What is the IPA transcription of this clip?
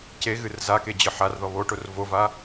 ceɣɨr zake d͡ʑɨħarðɔ βoʈor vova

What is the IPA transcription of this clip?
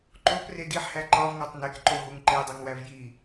ǃopre diħhæ ǃɒvŋɒtˤ nekǃoɦuŋ ǃedˤeŋwæv ji

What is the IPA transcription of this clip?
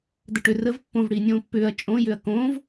dəʈʏ rəv pːõvɽiː nʲõːpːʏːɐ̯ t͡ʃʼõjʏɐ̯ kõːv

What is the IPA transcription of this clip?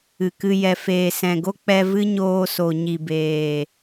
ɨ˨kɨ˧ jɛ˨feː˨sɛ̃˨ɡo˦ k͡pɛ˧vɨ˦ɲoː˧so˨ ɲi˨beː˨

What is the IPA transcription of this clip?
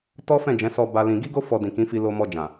tɔ˦fɛ̃˦˨d͡ʒɛ̃˨˦ sɔ˧ ba˦ lĩ˧ ɡi˦ɡo˦ fɔ˧dĩ˨kĩ˨˦fi˧ lo˧ mɔ˧d͡ʒã˨

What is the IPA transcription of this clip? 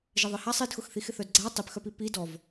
ʒɪðˤɪhasˤ idxʊxθix ɪθœdɡ͡ǀa tˤipxœpi pi dɔv

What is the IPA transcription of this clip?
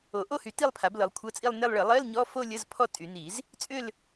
o˨˩˦ʔo˥˧hy˩˥ ti˥˧lˠpʰa˩˥b lɤ˩˥lˠ kʷʰɤ˧˥˧t͡sʼi˥˧lˠne˥˧lˠ ɭə˨˩˦lˠɜ˧˥˧l ɲɔ˧˥˧fo˥˧lʲə˧˥˧z pʰɔ˥˧tʼy˨˩˦ni˨˩˦z | t͡sʼʏ˥˧l

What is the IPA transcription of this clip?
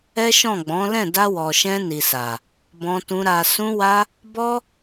ɛ˦ʃɔ̃˦˨ɡ͡bɔ̃˨˦ lɛ̃˦˨da˧wɔ˨ʃɛ̃˧ ni˨sa˨ | bɔ̃˧tũ˧ ɾa˨sũ˧wa˧ | bɔ˦

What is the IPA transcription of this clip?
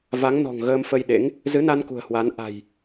va˨˦ŋnɔ̤˨˩ŋɣəː˧m fə˧j ɗḛ˧˥ŋ | zɨ˨˦na˧n kṳ˨˩ə̯hwa˨˦n ʔa̤˨˩j

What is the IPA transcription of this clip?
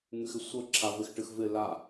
ŋyxɪsʷə ǁʰavɪxʈɨxvɪ la

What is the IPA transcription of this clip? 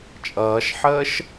t͡ʃʼʌːʃħəːʃ

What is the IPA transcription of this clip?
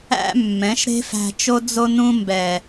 æ̰˦ mːɛ̃˨˦ʃɾe̤˦fæ̤˧t͡ʃo˦ d͡zo˧nũ˧mbɛ˨

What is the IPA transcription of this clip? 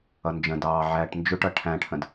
ʌnd͡ʒə̃dɑː ʕæːʈnd͡ʒʊʈʌ ʈʰæ̃ʈʰə̃d

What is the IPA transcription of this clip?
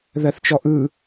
ðɜθt͡ʃɔʔɯ

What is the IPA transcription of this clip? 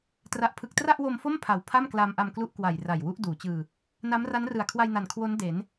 tra˨˩ʔpʰɯ˨˩k̚ tra˥˩ʔwo˧mfo˥˩m pʰa˨˩w pʰa˥˩mklaː˧mʔa˧mklu˦˥ʔ kwa˨˩j ra˨˩jwu˦˥ʔ duː˩˦t͡ɕɯː˧ | na˦˥mra˦˥nrɯ˨˩a̯ kʰwa˧jna˨˩n kʰwo˦˥n de˩˦n

